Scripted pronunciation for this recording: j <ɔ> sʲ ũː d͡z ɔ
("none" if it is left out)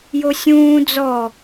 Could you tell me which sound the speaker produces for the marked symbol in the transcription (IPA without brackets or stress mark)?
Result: o